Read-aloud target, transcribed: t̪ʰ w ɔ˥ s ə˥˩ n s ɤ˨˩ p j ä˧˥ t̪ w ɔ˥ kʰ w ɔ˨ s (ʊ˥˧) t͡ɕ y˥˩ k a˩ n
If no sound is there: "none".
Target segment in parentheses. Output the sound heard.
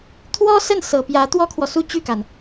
u˥˧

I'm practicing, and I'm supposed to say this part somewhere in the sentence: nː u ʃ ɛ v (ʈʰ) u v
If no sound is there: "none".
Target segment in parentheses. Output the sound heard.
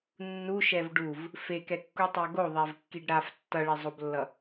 ɖ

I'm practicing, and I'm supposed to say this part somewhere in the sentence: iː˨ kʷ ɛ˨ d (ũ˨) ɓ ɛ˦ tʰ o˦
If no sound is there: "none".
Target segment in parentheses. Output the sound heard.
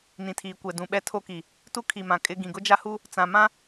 ũ˨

